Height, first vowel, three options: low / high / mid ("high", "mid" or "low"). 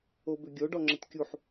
mid